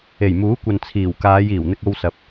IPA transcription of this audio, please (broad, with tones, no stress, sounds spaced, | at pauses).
e˨˩ j m uː˨˥ kʷ ɐ˨ n t͡sʰ iː˨˩ w k aː˨˧ j iː˨˩ w n̪ ɪ˧ k̚ o˧ w s ɐ˨˥ p̚